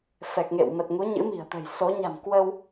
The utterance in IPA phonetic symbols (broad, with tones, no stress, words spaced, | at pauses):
fɛ˨˩k̚ŋḛ˧˨wmə˨˩t̚ŋu˨˦ ɲɨ̰˧˥mi̤˨˩ə̯t̪ə̤˨˩j so˨˦ɲa̤˨˩m kwə˧w